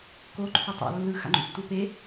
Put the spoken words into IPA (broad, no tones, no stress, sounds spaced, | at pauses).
k o ǃʰ o tˤ a̰ lː ɯ x a̰ ŋ͡ǃ ṵ tː u p e